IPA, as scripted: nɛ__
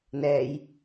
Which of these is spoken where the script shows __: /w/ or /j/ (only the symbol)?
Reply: j